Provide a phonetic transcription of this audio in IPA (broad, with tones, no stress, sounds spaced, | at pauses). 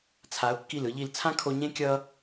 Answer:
t͡sʰ a˩˧ ʊ̯ kː i˧˩ l ɯ˩˧ ʎ i˧˩ l t͡sʰ ã˥ kʰ o˧ ɲ ẽ˥ kʲ ʌ˥